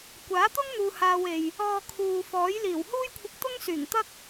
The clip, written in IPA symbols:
kʷ aː˨˥ t̪ ʊ˥ ŋ n̪ uː˨ h aː˧ w e˨ j | ɔː˨ kʰ uː˨ f ɔː˨˥ j l iː˨˩ w h uː˥ j kʷʰ ɪ˧ k̚ t̪ ʊ˥ ŋ s yː˨˩ ŋ t̪ ɐ˥ k̚

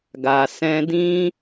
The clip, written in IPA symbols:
ɡ a˨ s ɛ̃˧ d ĩ˦

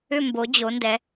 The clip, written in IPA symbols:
ʏ˦˨ m b o˩˧ d͡ʑ o˩˧ n d ɛ˩˧

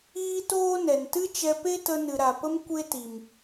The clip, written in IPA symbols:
iː˦ t oː˦ n ɛ˨ n t ɨ˦ t͡ʃ ɛ˧ p e˦ t ə˧ n ɨ˨ ɾ a˨ p ə˦ m kʷ e˦ t i˨ m

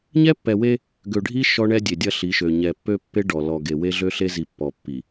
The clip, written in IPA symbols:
ɲ ɛ˦ pː ɛ˨ w e˦ | ɡ ø˨ ɖʱ i˦ ʃ ɔ˦ ɳ ɛ˦ dʲ e˨ dʲ ɐ˦ ɬ i˨˦ ʃ ø˨ ɲ ɛ˨ pː ø˦ pː e˦ ɖ ɔ˨ l ɔ˨ ɡ e˨ w e˦ ɮ ø˦ ɬ e˦ z i˨ pː ɔ˨ pː i˨

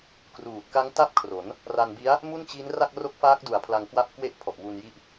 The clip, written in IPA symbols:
k r uː˨˩ t̚ k a˦˥ ŋ t a˥˩ p̚ kʰ r o˩˦ n | r a˧ n b i˦˥ a̯ | m u˥˩ n t͡ɕ i˦˥ n r a˥˩ k̚ r o˦˥ k̚ f aː˦˥ k̚ d u˨˩ a̯ pʰ l a˧ ŋ k w a˦˥ p̚ k w e˦˥ ʔ pʰ ɔ˨˩ ʔ w u˧ n j i˦˥ ʔ

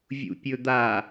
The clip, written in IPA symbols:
vʲ ṵ pʲ ɵ d̪ a

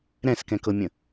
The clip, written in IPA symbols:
ɾ ɛ̃ s k ɛ̃ k ɤ mʲ ə̃

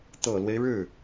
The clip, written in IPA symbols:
t̪ ɤ˨˩ l w e˦ ɪ̯ ɻ ɻ̩˥˩

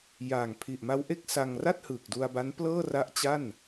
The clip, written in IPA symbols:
j aː˨˩ ŋ pʰ i˨˩ ʔ m a˦˥ w ʔ e˥˩ k̚ s a˧ ŋ r a˥˩ t̚ h ɯː˨˩ k̚ d u˧ a̯ b a˦˥ n p l ɤː˥˩ r a˦˥ ʔ t͡ɕ a˥˩ n

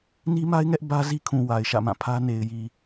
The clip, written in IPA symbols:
n i˦ m a˦ ɪ̯ ŋ ɛ˦ ʔ b ä˦ z i˦ kʰ ũ˨ w a˨ ɪ̯ ʃ ä̰˦˨ m ã˦˨ pʰ ä˦ n e˨ ɪ̯ j i˨

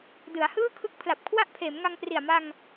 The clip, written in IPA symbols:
d ɯ˩˦ a̯ h ɯː˥˩ kʰ ɯ˦˥ k̚ pʰ l a˨˩ p̚ kʰ w a˥˩ ʔ pʰ eː˩˦ m ŋ a˧ ŋ p r i˨˩ a̯ m a˧ ŋ

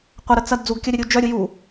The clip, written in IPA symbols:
qʷ ɐ ɾ ə t͡s ɐ d d͡z u ɡ kʲ ɐ ɾʲ ɐ ɾʲ u d͡ʒ œ ɾʲ ʊ j u

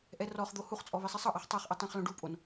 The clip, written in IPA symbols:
ʔ ɛ r ɔ χ d̪ o h u χ t͡sʼ ɔ β i sˤ i sˤ ɤ ʔ a χ tˤ ɤ χ ʔ i tˤ ẽ χ l õ ɖ u pʼ o n

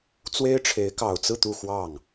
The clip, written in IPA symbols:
t͡s w e˥ ɪ̯ ʈ͡ʂʰ e˧˥ ɪ̯ k ɑ˨˩ ʊ̯ t͡s ɹ̩˥˧ t̪ u˥˧ x w ɑ˥˩ ŋ

